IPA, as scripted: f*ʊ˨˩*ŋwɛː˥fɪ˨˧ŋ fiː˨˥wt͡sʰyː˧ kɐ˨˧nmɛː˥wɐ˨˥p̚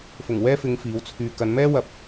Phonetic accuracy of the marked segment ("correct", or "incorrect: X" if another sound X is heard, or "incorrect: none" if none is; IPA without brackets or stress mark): correct